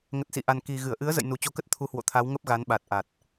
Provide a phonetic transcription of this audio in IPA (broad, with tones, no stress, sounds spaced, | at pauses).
ŋ ə˨˩ t̚ s ḭ˧˨ ʔ a˨˩ n k i˨˩ ɣ ɨ˧˩ ə̯ ʔ ɨ˨˦ ə̯ z ə̰˧˨ j n u˨˩ t͡ɕ o˧ k ə˦˥ t̚ t̪ʰ u˨˦ h w o̰˧˨ t̪ʰ a˨˦ w ŋ ə˦˥ p̚ ɣ a˨˦ n ɓ a˨˩ t̚ ʔ a˨˩ t̚